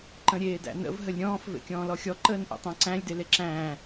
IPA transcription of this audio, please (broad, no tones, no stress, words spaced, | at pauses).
ǃə̃ɾʲeːdæ̰nə̰v ɦəlʲɾʲɔ̃ːf vḛkʲɔ̃ːlɔxʲɔ ǃəːnʔḛtˤæ̃ǀæ̃lʲ deleǁæ̃ː